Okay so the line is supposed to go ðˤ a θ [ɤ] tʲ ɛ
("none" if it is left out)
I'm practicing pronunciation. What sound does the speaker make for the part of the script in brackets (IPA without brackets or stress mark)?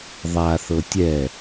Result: ɤ